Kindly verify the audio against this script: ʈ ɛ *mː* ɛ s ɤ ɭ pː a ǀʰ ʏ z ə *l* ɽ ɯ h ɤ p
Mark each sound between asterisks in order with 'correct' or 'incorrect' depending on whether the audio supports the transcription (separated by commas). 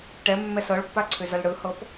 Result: correct, correct